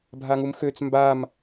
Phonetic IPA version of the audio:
bʱaŋumxøt͡s mbam

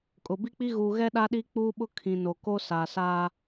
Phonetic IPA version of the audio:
kʼʊ˨bi˦k͡pi˦ ɣuː˨ɣɛ˦ ɗa˦ɗi˦k͡puː˦ɓʊ˦ kʰĩ˨ no˨ko˦ sa˨saː˦

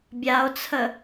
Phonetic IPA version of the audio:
bʲao̯t͡sʰə

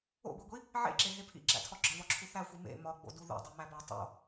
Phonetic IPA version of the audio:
o̰ɡʷiɡʷi | ʕḛǁeɦe pʰḭǁæ̰tʰɒ ɡ͡ǁɒβɒǁʰu θæxʷi mḛ mɒɡ͡bo̰du ðo̰dˤimæbæ tˤo̰

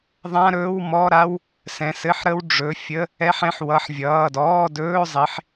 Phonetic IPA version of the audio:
ðˤã˧˥˧ɾɵː˧˥˧wmɔ˧˥˧ɾa˧˥˧w | sɛ̃˩˧˩ sɘ˧˥˧ħɾə˧˥˧wɖ͡ʐɵ˩˧˩ fʲə˧˥˧ | ɛ˧˥˧ħɛ̃˧˥˧ħ wʌ˩˧˩ħvʲʌː˩˧˩dɔː˧˥˧ dɵː˧˥˧zˤi˩˧˩ħ

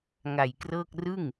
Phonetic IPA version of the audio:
ŋa˨˩jkrɤː˥˩k̚ rɯ˥˩ŋ

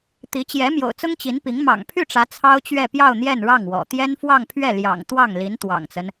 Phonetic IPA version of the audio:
t̪i˧˥t͡ɕjɛ˧˥ mjo̰˨˩ʊ̯t͡sʊ˥ŋ t͡ɕi˧˥npi˧˥ŋ mɑ̰˨˩ŋpʰy˥˩ʈ͡ʂä˧˥ t͡sʰɑ˥ʊ̯t͡ɕɥɛ˥˧pjɑ˥˧ʊ̯ n̪jɛ˥˧nɻɑ˥˩ŋwɔ̰˨˩ t̪jɛ˥nfwɑ˥˧ŋpʰɥɛ˥˩ ljɑ̰˨˩ŋ t̪wɑ˥˩ŋ li˧˥nt̪wɑ̰˨˩ŋt͡sə˦n

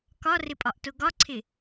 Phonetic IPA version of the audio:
kɒrɪpʼɒʔtʊ ɡɒǀʰɪ

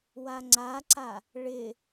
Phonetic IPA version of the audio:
waŋ͡ǀaǀa | ɭɪ

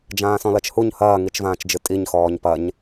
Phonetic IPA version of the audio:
d͡ʒãːsɔ̃lɐt͡ʃhuɲ hɐːŋit͡ʃvãːt͡ʃd͡ʒɨ tʼiɲxɔːɲ pɐɲ

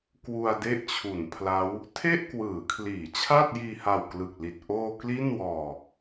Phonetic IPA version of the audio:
kwu˧a̯de˦˥ʔt͡ɕʰu˩˦npʰla˦˥w | tʰe˥˩ʔkwɯː˩˦kʰliː˩˦ t͡ɕʰa˥˩t̚jiː˧ha˨˩wklɯ˨˩k̚ li˨˩t̚ ʔoː˧ kli˥˩nwɔː˧

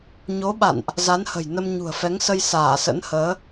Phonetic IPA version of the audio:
ɲo˨˦ɓa̰˧˨nʔ | za˨˦nhə̤˨˩jnə˧m ɲṳ˨˩ə̯fɛ˨˦ŋsə˧j saː˧˩sə̰˧˥nhəː˨˦

